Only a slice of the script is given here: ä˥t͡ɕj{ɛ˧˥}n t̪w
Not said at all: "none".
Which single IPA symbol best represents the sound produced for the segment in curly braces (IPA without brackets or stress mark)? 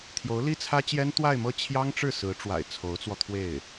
ɛ˥